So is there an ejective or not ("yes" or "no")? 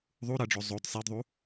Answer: no